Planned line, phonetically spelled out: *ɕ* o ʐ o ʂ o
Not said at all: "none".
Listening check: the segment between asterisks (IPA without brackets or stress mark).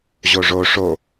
ʑ